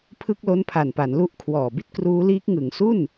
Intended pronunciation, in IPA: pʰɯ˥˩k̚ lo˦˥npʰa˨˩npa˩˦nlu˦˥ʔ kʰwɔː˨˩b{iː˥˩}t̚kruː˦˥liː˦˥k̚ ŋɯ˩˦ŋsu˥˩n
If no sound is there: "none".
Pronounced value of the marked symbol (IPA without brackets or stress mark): i˥˩